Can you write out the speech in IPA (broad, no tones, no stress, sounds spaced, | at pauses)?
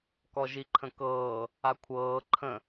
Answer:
k ɔ ʒ i ǃʰ ə̃ k ɤː | a kʷʰ ɤː ǃʰ ə̃